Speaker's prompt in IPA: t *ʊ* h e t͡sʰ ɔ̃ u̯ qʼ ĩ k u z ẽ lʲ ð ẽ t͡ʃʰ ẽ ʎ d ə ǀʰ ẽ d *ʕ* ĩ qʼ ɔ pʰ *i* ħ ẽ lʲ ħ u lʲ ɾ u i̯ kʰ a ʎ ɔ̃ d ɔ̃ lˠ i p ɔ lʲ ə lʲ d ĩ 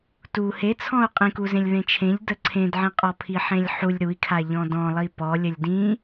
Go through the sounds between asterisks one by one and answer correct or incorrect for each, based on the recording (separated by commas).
incorrect, correct, correct